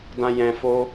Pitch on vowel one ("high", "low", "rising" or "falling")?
low